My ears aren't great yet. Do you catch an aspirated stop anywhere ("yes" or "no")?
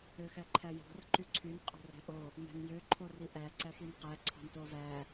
yes